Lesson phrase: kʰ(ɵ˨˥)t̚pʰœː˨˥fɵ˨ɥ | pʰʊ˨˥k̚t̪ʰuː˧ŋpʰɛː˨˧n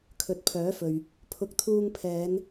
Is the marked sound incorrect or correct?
correct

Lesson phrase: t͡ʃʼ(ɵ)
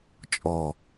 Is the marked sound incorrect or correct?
incorrect: ɔ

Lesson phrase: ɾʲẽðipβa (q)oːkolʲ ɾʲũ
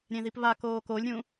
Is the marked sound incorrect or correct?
incorrect: k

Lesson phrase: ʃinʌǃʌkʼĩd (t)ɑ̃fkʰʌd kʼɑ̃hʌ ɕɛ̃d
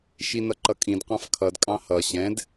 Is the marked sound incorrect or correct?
incorrect: q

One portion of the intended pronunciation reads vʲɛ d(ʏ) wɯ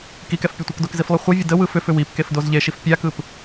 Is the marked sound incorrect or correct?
incorrect: ə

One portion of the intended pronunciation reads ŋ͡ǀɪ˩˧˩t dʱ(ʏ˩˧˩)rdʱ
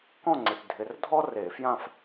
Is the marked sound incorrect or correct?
incorrect: ɪ˩˧˩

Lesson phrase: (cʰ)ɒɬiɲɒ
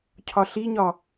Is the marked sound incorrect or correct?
correct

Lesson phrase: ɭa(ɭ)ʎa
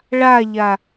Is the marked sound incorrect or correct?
incorrect: none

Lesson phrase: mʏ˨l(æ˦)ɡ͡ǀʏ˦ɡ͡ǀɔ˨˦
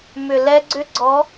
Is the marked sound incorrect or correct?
incorrect: ɛ˦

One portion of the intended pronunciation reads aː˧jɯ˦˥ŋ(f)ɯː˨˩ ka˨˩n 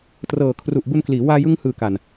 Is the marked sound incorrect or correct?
incorrect: h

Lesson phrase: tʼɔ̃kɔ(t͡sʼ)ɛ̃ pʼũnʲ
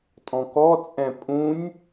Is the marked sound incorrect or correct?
correct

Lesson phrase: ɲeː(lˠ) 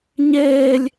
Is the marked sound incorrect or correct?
incorrect: lʲ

